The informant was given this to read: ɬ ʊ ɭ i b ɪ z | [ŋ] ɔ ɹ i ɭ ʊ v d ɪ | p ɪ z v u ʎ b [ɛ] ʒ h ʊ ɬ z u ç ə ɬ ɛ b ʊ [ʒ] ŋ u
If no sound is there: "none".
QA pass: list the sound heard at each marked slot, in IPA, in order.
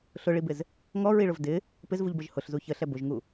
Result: ŋ, ə, ʒ

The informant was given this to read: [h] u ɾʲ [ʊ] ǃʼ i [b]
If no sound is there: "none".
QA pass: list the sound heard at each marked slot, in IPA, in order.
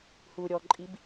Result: h, ɔ, b

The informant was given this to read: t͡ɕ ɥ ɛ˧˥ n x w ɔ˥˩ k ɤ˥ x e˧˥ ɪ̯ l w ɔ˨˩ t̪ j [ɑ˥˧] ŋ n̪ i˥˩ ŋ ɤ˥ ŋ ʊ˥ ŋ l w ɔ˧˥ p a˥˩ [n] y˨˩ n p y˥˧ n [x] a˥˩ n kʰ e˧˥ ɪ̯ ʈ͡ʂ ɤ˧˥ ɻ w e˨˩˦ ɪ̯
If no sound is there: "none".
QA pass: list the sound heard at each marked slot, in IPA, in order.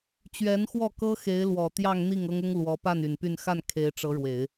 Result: ɑ˥˧, n, x

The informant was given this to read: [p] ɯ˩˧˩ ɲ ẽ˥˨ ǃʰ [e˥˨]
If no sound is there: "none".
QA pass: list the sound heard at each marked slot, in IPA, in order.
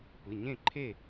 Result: p, e˥˨

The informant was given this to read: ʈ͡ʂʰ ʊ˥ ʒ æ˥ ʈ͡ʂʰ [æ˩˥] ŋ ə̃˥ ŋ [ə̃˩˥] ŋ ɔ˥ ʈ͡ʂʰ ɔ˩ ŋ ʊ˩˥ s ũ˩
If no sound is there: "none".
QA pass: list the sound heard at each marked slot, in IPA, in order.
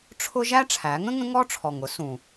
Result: æ˩˥, ə̃˥

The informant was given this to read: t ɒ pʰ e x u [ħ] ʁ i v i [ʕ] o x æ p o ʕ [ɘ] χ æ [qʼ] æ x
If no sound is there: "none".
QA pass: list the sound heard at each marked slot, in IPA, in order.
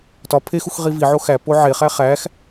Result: x, ʕ, e, χ

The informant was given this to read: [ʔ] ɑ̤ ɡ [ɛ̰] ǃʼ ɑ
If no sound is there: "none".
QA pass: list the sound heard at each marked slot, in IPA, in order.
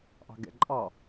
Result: ʔ, ɛ̰

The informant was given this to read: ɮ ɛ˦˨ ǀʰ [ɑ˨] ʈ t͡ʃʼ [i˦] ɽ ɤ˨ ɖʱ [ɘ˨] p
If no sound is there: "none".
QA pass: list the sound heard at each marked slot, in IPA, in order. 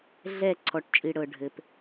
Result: ɔ˨, i˨, ɘ˨

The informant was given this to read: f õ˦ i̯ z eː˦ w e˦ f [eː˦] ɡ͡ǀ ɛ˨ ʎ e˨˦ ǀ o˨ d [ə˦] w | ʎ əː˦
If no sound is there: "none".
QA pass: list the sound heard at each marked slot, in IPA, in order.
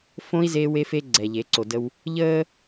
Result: eː˦, ə˦

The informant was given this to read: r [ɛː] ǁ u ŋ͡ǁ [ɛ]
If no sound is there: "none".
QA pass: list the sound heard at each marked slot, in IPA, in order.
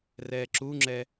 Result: ɛː, ɛ

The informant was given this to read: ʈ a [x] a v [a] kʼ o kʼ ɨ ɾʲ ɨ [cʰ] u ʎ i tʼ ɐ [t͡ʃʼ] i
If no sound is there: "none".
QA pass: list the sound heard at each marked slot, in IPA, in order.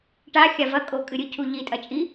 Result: xʲ, ɐ, cʰ, t͡ʃʼ

